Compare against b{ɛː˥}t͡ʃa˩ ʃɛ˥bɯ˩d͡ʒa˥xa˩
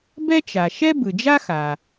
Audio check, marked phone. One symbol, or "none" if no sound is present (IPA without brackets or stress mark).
ɛ˥